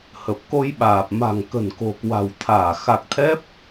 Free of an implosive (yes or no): no